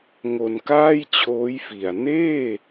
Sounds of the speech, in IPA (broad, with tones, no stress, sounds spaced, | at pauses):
ŋ o˧ n k aː˥˩ j t͡ɕʰ oː˦˥ j f i˨˩ a̯ n eː˥˩